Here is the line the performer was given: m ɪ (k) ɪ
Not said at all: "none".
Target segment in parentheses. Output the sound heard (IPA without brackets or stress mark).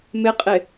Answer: qʼ